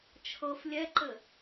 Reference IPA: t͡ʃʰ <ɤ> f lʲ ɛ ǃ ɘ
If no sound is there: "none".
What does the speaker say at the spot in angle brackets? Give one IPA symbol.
ɤ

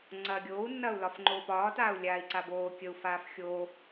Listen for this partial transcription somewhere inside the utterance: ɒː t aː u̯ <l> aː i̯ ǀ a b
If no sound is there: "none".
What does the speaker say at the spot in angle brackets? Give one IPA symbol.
lʲ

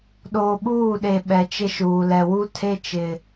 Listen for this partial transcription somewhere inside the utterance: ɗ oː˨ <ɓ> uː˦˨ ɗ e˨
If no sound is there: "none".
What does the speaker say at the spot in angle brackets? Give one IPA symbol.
ɓ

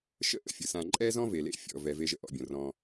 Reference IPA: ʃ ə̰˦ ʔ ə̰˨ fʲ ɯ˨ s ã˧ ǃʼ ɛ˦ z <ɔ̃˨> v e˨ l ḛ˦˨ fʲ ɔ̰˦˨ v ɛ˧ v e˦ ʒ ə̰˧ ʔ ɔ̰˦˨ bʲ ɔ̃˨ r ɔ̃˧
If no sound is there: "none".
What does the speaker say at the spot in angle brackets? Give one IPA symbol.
ɔ̃˦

